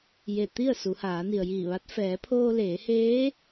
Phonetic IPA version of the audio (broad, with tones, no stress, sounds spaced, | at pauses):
j e˧˩ t̪ i˥˨ ə̯ s u˩˧ h aː˩˧ n i˩ ə̯ j iː˧˩ ʋ a˧˥ t̚ f ɛː˩˧ pʰ oː˧ l eː˩˧ h eː˧˥